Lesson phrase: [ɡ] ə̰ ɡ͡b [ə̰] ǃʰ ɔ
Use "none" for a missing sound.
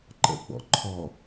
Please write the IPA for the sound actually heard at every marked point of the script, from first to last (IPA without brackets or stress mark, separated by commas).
ǃ, ɔ̰